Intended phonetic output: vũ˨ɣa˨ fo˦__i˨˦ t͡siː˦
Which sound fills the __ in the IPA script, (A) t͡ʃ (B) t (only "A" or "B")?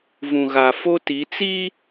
B